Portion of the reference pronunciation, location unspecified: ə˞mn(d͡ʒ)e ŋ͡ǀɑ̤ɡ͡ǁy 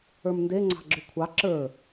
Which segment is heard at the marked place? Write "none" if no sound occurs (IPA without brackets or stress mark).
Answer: d